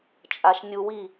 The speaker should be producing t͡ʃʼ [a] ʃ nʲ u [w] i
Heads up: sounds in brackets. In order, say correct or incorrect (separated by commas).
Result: correct, correct